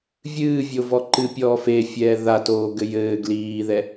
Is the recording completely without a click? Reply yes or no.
no